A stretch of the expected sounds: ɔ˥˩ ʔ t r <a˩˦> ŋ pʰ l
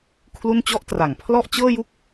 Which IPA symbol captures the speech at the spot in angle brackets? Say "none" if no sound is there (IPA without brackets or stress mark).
a˩˦